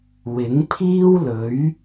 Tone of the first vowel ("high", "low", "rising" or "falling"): rising